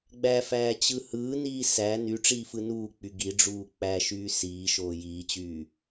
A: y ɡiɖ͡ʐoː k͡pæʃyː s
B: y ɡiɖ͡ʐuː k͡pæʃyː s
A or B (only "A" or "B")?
B